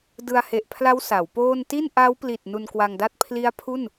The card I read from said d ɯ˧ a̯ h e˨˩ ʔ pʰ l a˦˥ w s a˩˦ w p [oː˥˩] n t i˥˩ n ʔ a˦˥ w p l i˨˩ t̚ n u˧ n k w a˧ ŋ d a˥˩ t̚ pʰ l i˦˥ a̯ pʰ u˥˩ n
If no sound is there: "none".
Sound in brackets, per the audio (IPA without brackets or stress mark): oː˥˩